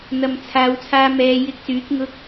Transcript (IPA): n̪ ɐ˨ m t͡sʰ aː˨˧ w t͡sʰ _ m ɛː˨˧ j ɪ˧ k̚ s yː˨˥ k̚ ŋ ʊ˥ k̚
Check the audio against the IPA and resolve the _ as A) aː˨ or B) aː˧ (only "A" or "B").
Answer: B